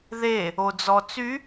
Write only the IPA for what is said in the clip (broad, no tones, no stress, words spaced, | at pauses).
ðe | od͡zɔt͡sy